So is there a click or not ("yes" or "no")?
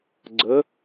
yes